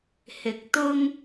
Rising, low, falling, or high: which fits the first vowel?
low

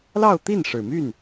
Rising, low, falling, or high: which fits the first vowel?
falling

